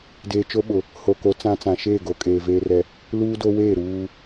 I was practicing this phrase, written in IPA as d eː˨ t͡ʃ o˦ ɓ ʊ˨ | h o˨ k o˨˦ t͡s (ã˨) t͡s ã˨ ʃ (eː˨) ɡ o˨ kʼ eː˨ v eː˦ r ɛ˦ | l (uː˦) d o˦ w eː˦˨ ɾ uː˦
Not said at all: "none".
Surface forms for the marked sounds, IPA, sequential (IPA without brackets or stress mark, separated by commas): ã˦, eː˦˨, uː˦